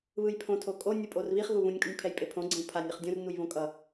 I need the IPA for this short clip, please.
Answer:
β ɯ j pʰ õ tʰ o kʼ o nʲ ɯ pʼ o r β i χ ɣ u β ũ nʲ kʼ u nʲ pʰ ɛ j pʼ e pʰ õ ɡ͡ǀ ẽ w pʰ a nʲ ʌ χ dʲ õ r n u j β õ kʼ ʌ

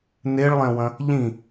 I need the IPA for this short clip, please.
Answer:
n e ɭ lˠ ɛ̃ w ɐ̃ | ʎ ĩ

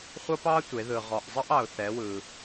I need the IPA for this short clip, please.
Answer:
χʷ ʌ˥ p ɑ˥ tʷ e˩˧ ð ɯ˩ ʁ ɔ˩ ʔ zˤ ʌ˥ ʔ ɑ˩ ʊ̯ θ ɛ˩˧ w ɯ˩

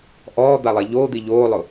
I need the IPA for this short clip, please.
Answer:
ʔ ɔː d̪ a lˠ e ʎ oː d̪ i ʎ oː lˠ ʊ

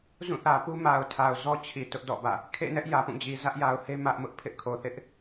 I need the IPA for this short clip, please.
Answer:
z ũ˦˨ θ ä˨ p u˦ m a˨ ʊ̯ tʰ a˨ ʊ̯ z ɔ˦ t͡ɕʰ i˨ t ʊ˦ ʔ d ɔ̰˦˨ b ä̰˦˨ | kʰ ḛ˦˨ n ɛ˦ ʔ j ä˨ p ũ˦˨ d͡ʑ i˨ z ä˦ ʔ j a˨ ʊ̯ h e˦ m ä˦ ʔ m ʊ˦ ʔ pʰ ɪ˦ ʔ kʰ o˨ θ ɪ˦ ʔ

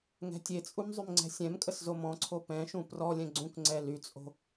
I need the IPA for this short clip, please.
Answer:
ŋ ɛ̤ tʲ e t͡sʼ u m zˤ y m ŋ͡ǀ ɛ̤ sʲ ɛ̃ m kʼ ə s z o m ɔ̃ ǀʰ o p ɛ̃ ʃ ũ p r ɔ lʲ ɛ̃ ɡ͡ǀ ũ k ŋ͡ǀ ɛ l y t͡sʼ o̤

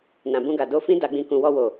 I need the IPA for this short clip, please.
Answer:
n ã˨ b ũ˧ ɡ a˨ d o˧ f ĩ˦ d a˧ ɡ͡b ĩ˧ k ũ˧ w ɔ˧ w o˨

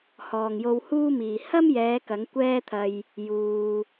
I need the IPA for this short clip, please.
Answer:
h ɔː˨ ŋ j o˧ w h uː˥ m iː˨ h ɐ˥ m j ɛː˨˧ k ɐ˨˥ ŋ kʷ ɛː˥ t̪ʰ ɐ˧ j | j uː˧

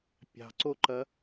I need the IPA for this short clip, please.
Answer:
pʲ ɑ̤ ǀ o ǃ ɐ

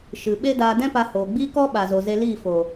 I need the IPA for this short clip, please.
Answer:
ʃ ɨ˨ ɓ e˦ d aː˧ d ɛ̃˦ p a˧ h oː˨ ɡ͡b iː˦ k ɔ˦ ɓ a˨ z o˨ z e˧ l iː˦˨ f o˨

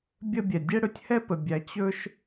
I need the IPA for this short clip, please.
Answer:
bʲ ə˥˧ bʲ ɛ˨ dʲ ɛ˥ ɽ ɵ˥˧ tʲ h ɛ˥˧ p ə˨ bʲ æ˨˦ t͡ɕ ɵ˥ ʃ

